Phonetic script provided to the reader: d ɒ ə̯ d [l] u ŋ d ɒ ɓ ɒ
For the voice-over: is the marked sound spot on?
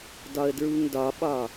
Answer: no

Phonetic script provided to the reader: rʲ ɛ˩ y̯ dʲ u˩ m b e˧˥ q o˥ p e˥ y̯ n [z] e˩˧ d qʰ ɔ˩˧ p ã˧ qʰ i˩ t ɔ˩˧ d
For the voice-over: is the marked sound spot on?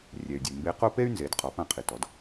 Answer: yes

